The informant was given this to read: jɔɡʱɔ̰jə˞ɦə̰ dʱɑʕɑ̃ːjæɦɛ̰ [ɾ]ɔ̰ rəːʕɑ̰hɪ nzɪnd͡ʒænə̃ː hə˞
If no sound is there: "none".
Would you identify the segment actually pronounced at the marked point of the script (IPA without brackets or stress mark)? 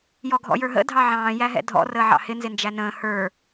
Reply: dʱ